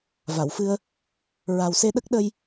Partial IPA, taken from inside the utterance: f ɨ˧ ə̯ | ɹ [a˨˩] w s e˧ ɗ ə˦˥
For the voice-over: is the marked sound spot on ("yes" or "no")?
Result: yes